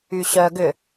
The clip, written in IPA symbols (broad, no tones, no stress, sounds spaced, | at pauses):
y ɕ œ ɡ ʏ